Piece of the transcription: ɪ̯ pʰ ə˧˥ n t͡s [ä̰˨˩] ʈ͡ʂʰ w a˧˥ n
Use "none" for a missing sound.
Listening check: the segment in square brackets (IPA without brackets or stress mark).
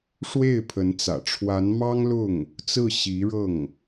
ä̰˨˩